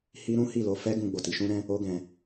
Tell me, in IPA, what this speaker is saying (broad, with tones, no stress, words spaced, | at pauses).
hi˦ɾũ˦hi˦˨ lo˧fɛ˦ ɡũ˧ɡ͡bo˨ti˧ ʃũ˦ɾɛ̃˦ | o˦ɡɛ̃˧